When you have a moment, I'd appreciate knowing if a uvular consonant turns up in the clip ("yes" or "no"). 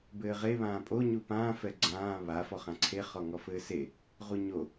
yes